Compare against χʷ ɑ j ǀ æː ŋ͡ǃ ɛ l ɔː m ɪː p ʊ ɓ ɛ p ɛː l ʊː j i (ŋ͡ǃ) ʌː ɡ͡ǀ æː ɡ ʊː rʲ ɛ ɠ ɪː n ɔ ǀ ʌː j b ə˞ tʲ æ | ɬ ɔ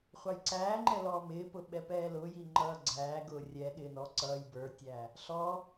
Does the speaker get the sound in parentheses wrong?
no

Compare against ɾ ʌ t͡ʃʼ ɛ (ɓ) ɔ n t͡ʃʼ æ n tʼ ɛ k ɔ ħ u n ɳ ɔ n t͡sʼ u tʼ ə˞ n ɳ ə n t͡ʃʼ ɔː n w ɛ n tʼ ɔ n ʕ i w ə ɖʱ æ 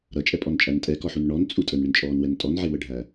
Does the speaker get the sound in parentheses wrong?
yes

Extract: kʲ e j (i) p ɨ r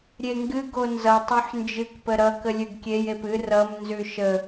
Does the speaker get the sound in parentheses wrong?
yes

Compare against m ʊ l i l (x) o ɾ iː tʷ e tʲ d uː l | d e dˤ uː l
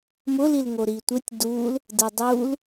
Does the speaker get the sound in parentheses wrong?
yes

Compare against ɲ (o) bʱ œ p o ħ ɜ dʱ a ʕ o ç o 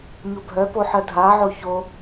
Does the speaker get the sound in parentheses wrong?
no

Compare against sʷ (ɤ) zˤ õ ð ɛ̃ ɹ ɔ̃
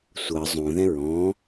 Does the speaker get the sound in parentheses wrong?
no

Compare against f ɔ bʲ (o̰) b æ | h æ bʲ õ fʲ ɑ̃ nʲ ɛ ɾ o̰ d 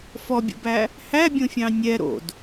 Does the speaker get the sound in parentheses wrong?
no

